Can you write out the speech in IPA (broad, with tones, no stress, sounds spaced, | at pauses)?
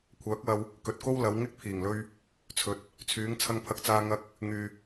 kʷʰ œː˨˥ k̚ w ɐ˧ w | k ɵ˨ t̚ k o˥ w l ɐ˨˧ w ŋ ɪ˥ k̚ pʰ iː˨˩ ŋ l ɵ˧ ɥ | t͡sʰ ɵ˨ t̚ | t͡sʰ yː˨˧ ŋ t͡sʰ ɐ˧ ŋ pʰ ɐ˧ k̚ t͡s aː˧ ŋ ɐ˧ k̚ | ŋ yː˨